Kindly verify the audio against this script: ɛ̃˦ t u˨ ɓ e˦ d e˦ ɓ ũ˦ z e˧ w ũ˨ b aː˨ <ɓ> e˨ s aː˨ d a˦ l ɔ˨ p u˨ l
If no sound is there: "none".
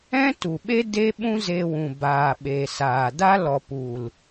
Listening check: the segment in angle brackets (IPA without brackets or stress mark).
ɓ